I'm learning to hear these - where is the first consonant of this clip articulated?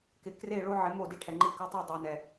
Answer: velum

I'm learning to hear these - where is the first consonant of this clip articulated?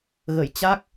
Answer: velum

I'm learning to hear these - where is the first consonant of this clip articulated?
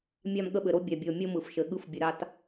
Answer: lips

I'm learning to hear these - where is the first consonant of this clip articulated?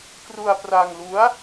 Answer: velum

